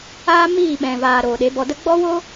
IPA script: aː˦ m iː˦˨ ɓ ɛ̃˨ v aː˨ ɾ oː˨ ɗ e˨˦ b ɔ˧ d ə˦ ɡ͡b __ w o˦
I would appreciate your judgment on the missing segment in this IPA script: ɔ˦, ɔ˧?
ɔ˦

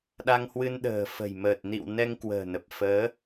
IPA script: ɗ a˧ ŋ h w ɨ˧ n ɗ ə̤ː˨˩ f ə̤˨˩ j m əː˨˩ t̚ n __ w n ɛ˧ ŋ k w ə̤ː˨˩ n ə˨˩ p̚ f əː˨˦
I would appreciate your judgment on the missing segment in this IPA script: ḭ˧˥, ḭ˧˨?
ḭ˧˨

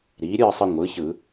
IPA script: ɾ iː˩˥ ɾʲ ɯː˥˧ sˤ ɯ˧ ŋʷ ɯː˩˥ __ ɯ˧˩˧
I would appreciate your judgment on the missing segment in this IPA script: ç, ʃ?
ç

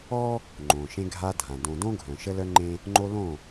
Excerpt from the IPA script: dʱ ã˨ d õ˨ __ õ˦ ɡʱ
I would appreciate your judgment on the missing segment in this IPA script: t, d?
d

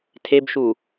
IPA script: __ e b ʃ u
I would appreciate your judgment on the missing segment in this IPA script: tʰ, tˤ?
tʰ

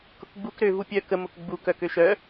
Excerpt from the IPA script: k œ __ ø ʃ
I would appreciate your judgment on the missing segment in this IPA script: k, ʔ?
k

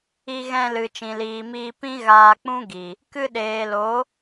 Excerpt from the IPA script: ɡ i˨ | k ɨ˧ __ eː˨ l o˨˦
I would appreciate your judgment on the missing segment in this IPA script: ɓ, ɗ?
ɗ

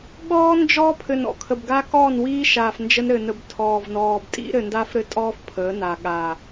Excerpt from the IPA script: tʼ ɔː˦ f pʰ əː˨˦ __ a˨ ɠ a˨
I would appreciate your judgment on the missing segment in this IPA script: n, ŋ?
n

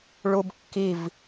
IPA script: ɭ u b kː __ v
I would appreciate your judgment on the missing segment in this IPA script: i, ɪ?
i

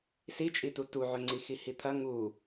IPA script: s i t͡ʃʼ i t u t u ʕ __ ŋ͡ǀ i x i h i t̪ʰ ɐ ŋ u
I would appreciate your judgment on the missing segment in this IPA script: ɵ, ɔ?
ɵ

